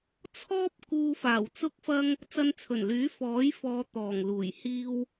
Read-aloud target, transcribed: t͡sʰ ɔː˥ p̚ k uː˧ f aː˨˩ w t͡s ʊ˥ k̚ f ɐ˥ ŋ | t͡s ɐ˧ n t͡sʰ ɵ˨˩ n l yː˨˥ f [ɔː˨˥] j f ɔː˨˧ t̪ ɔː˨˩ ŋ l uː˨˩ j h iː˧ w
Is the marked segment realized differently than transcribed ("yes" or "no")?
no